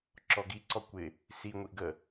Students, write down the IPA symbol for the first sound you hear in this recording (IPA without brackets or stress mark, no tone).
ǁ